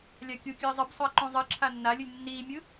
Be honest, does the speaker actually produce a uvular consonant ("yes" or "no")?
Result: no